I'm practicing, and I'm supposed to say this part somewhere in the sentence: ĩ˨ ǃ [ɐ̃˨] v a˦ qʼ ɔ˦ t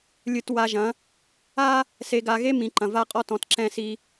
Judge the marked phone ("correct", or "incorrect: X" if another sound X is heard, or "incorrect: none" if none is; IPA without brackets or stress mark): correct